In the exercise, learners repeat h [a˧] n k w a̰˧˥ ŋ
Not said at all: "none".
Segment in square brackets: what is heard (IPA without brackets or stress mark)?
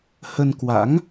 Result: ə˧